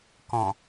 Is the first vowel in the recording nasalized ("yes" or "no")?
yes